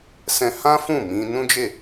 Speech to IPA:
sɛ̃˧ hã˦ fũ˦˨ mĩ˧ nũ˦d͡ʒe˦˨

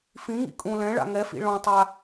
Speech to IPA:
fĩŋḭ kʼũ lɛ̃ɭa̰ ŋɛfḭ ɭɔ̃tˤa

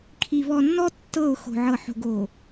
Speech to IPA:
kʰi˨ βɔ˨nːɔ˦ tːɤ˦˨ʊ̯ xo̤˨ʕɤ˨ ħo̤˨ɡo˨

